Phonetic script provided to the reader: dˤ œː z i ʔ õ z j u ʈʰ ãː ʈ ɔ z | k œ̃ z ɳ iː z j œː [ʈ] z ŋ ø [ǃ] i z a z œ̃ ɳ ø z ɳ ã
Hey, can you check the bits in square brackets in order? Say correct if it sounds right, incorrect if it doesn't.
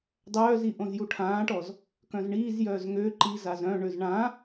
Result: incorrect, correct

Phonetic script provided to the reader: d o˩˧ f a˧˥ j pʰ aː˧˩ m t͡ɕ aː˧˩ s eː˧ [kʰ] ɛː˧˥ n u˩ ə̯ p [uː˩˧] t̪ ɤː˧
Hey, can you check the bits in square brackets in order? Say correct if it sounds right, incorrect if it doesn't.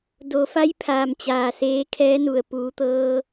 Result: correct, correct

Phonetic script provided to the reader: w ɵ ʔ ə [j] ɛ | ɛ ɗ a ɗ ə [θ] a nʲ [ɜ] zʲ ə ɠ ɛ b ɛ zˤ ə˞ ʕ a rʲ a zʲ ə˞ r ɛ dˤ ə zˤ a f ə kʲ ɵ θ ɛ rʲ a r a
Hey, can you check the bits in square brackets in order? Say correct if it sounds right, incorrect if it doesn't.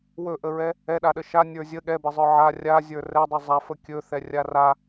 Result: incorrect, incorrect, incorrect

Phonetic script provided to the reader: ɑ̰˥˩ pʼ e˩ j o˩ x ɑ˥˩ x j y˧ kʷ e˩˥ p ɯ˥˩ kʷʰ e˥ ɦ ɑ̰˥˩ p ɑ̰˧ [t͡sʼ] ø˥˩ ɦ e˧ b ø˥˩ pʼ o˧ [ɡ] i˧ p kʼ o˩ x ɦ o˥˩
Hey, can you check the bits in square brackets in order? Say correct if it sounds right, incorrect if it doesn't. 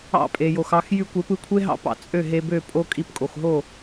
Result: correct, incorrect

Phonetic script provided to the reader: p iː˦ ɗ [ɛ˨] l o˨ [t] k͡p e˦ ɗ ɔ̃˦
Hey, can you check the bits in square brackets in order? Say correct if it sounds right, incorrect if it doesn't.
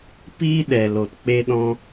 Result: correct, correct

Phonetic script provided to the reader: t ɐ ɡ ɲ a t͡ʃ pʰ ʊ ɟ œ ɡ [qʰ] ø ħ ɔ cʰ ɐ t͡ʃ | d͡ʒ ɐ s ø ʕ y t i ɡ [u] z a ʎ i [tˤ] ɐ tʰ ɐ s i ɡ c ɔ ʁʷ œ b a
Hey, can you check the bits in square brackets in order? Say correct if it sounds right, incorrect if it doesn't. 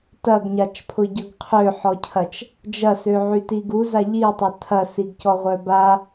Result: correct, correct, correct

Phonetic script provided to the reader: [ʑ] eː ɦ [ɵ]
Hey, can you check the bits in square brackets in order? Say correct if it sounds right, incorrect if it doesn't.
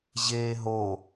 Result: correct, incorrect

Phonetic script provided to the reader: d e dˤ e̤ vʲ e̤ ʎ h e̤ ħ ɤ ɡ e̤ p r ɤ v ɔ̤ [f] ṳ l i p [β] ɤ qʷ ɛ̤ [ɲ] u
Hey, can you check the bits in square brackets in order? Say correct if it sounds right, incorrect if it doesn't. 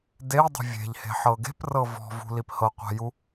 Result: incorrect, incorrect, incorrect

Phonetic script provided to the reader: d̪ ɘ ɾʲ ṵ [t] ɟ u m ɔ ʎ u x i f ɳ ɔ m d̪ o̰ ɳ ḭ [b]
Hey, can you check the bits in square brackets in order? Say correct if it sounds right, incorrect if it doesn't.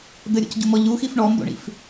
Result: incorrect, incorrect

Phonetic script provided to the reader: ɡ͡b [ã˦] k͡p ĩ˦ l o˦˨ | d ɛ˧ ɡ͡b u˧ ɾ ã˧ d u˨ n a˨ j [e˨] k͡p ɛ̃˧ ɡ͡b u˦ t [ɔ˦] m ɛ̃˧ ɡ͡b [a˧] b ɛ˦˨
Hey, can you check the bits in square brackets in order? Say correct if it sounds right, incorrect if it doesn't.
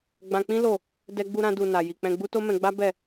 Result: incorrect, incorrect, incorrect, incorrect

